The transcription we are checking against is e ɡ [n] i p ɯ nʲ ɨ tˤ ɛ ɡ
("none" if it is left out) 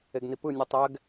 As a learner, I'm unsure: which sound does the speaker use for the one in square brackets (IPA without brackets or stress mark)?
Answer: n